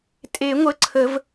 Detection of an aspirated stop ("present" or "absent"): present